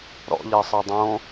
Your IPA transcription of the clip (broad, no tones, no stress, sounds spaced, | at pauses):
ɾ ɔ̰ ʎ ɜ sˤ ɜ dˤ õ